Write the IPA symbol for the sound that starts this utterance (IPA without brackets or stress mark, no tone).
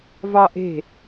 v